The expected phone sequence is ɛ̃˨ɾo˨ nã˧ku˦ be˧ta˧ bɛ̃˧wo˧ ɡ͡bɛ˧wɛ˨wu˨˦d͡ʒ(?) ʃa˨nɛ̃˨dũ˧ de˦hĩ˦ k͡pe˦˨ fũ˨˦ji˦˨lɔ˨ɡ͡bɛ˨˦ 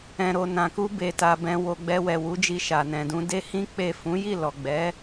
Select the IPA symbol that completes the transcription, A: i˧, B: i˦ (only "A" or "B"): A